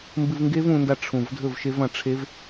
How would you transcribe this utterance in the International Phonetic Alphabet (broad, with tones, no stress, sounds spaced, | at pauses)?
m b ɨ˧ v ŋ ɡ e˦˥ v ũ˧ n d a˧ ʈ͡ʂʰ ũ˨˩ v dʱ ɵ˥˩ v ʃ e˦˥ v ɐ̃˧ ʈ͡ʂʰ e˦˥ v